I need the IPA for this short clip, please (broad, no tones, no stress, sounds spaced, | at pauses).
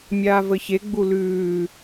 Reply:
mʲ aː v ə ç e ɡ͡b u l ʉː